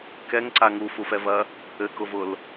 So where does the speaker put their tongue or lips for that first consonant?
velum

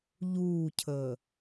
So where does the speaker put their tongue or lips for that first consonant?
palate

